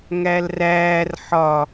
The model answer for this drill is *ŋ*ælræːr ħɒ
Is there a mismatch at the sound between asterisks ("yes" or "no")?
no